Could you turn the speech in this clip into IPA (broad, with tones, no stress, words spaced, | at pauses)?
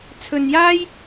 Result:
t͡sʰɵ˧njaː˥j